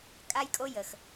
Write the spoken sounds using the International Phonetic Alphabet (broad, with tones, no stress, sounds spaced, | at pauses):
kʼ a˦ j kʼ o˦ j ə˨ x